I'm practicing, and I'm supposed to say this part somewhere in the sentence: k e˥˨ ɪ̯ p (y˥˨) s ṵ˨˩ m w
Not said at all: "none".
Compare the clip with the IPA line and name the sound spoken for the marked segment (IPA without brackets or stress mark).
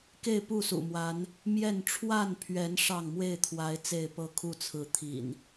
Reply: u˥˨